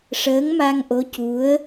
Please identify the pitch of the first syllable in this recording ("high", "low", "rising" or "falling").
rising